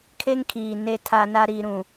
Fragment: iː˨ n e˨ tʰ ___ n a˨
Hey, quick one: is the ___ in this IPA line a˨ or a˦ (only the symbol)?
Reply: a˨